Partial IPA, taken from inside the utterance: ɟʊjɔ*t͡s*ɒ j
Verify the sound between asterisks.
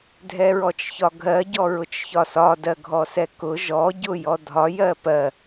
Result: incorrect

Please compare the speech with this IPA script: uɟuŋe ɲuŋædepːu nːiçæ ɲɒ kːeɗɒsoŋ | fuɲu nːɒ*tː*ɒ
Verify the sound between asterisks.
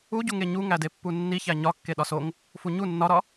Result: incorrect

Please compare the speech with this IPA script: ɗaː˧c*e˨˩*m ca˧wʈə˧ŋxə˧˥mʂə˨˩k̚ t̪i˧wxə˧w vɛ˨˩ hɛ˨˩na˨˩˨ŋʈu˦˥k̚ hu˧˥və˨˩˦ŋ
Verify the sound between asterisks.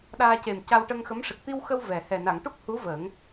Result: correct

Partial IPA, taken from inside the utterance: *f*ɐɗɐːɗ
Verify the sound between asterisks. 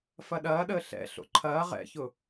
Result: correct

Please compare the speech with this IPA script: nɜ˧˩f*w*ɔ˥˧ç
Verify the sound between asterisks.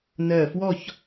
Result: correct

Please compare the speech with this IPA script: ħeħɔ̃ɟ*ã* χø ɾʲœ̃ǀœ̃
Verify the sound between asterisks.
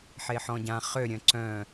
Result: correct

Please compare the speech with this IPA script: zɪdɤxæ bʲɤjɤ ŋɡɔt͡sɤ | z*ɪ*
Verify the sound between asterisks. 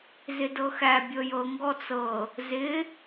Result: correct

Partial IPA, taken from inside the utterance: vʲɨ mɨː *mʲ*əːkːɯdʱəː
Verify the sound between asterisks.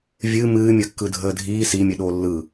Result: correct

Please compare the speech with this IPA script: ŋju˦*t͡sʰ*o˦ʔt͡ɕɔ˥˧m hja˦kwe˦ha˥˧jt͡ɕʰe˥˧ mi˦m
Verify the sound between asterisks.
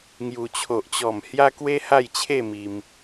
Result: incorrect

